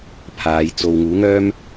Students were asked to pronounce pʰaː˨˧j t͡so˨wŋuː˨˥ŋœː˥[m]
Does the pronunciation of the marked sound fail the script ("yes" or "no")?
no